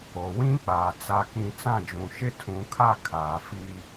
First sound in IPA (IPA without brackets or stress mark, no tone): o